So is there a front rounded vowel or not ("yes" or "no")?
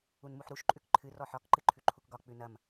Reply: no